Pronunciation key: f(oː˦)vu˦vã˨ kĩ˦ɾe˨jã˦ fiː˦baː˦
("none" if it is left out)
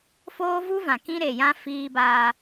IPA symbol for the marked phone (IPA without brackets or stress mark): oː˦